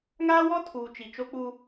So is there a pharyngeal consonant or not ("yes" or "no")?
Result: no